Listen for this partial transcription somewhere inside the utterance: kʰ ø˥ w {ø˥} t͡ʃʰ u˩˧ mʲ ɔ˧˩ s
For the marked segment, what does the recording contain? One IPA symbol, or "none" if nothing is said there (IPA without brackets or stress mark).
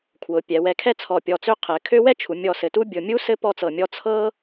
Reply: ɛ˥